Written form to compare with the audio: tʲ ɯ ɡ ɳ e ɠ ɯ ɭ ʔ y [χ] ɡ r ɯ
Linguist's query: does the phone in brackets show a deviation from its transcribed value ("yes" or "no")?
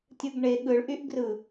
yes